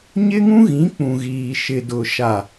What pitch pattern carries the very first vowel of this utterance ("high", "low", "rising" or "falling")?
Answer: high